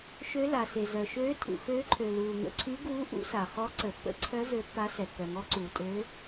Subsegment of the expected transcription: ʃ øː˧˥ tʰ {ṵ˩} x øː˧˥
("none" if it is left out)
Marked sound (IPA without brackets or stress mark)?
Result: ṵ˩